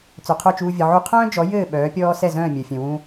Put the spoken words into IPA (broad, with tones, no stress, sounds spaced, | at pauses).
t͡s œ˩ qʰ œ˥˩ t͡ʃ uː˧ vʲ ɘ˩ ʕ u˧ qʰ œ̃ː˥ d͡ʒ ɔ˩˥ j ɘː˥˩ ɓ œː˩˥ pʲ ɔː˥ s ɛ˥˩ z œ̃ː˥˩ mʲ œ˩ fʲ œ̃˩ w ũ˧